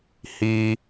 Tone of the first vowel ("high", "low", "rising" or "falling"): low